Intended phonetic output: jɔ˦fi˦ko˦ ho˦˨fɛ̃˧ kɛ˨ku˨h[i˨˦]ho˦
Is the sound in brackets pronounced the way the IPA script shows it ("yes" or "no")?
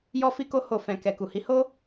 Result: yes